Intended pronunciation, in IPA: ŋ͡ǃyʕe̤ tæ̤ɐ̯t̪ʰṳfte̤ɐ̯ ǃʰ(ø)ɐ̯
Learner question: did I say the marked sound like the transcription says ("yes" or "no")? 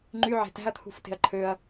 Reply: yes